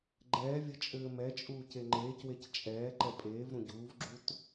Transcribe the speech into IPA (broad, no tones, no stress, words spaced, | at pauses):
ɡ͡ǃɛːvʲɘ t͡ʃʼɘːmɛt͡ʃʼuː ceŋ͡ǃeːcwec t͡ʃʼɛː ǃɛpʼeːvɾũ ɟuːvɡ͡ǁut